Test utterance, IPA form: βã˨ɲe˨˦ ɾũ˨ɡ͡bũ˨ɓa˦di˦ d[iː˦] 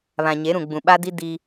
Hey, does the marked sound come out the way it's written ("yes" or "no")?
no